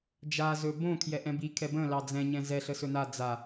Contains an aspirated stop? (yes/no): yes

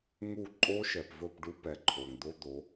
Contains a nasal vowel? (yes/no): no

